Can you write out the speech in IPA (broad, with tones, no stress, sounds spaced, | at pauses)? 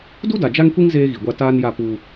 d u˦ d a˨ d͡ʒ a˦ ŋ kʷ i˦ ŋ z eː˦ ɣ i˨ ɡʷ a˦ t aː˦ n j a˦˨ p u˦